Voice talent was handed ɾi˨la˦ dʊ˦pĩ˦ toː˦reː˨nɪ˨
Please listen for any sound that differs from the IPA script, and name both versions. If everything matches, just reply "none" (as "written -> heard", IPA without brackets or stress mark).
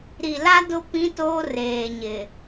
n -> ɲ